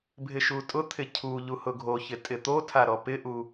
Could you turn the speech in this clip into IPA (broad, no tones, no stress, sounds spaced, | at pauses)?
bʱ ɪ ʃ u tʼ ʊ t̪ʰ ɪ cʰ u ʎ u h ʊ ɡʱ o ç ɪ tʼ ɪ t̪ o tʰ a ɾ ɔ p ɪ ʔ u